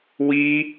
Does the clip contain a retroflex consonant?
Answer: no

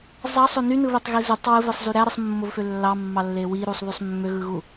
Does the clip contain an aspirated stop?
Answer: no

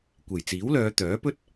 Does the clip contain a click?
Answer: no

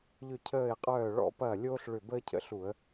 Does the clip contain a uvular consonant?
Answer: yes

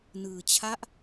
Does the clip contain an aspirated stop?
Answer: yes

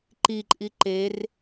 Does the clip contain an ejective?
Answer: yes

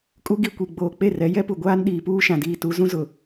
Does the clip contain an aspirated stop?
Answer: no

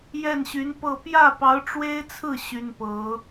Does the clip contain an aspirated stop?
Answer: yes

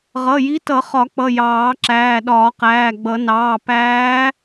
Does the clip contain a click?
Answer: yes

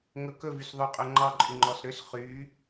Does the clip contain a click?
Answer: yes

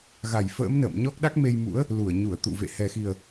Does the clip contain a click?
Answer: no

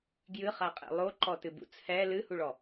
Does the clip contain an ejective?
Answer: yes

